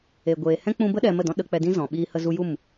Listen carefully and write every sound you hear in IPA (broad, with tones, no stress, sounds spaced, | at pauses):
e˨ ɡʷ eː˨ h ɛ̃˦ k͡p ũ˧ b ə˦ ɗ ɛ˧ m ə˦˨ d ɔ̃˦ ɗ ə˧ k͡p ɛ˧ d ĩ˦ z ɔ̃˨ ɓ iː˧ h ə˧ z u˧ j u˦˨ m